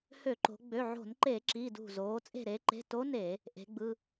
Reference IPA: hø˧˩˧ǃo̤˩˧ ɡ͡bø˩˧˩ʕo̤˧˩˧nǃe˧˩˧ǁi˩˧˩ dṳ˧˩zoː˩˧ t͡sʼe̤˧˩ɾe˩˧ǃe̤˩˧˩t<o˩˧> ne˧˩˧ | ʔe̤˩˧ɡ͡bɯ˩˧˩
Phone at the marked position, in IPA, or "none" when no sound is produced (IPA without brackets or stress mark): o˧˥